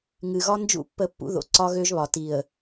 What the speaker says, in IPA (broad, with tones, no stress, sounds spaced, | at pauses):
ŋ ɨ˨ ɣ ɒ˦ n d͡ʒ ṵ˦˨ pː ə˦˨ pː ṵ˦ ð o̰˨ ǀ ɒ˦ ɣ ø˦ ʒ β ɒ˨ t i˨ ə̯